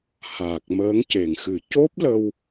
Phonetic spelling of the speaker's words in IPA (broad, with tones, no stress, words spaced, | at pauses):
haː˨˩k̚məː˧˥ŋ ce˨˩ŋxɨ˨˩˦ co˦˥p̚ lə˧w